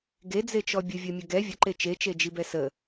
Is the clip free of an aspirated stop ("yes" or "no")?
yes